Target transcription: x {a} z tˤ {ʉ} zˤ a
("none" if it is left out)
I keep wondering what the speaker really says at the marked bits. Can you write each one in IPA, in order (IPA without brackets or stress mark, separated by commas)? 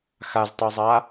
a, ʉ